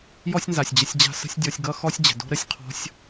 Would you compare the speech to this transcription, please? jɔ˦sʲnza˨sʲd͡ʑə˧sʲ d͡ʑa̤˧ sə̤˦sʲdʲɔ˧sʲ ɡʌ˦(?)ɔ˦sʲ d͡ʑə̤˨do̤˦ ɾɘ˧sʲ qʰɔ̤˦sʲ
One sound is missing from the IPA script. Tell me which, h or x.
x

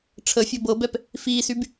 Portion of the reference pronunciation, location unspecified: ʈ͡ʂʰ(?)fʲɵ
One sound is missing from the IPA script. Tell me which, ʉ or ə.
ə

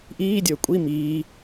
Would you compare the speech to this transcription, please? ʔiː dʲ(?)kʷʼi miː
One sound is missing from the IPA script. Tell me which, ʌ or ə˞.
ə˞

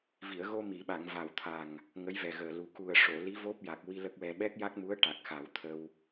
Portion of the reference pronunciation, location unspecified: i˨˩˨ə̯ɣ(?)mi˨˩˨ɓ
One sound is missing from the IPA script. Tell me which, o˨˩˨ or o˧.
o˧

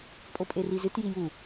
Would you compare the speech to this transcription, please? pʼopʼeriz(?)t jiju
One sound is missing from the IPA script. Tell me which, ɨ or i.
ɨ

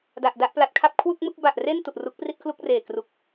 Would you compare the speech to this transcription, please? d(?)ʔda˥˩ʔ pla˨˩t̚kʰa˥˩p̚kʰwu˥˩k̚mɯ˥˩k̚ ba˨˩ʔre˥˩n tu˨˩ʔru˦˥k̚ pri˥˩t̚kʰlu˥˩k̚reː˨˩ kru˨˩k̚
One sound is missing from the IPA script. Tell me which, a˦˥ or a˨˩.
a˨˩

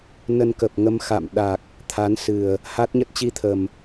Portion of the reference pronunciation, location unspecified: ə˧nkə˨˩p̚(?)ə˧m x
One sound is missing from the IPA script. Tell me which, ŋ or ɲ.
ŋ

